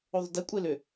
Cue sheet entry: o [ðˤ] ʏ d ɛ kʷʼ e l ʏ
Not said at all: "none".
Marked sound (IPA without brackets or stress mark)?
ðˤ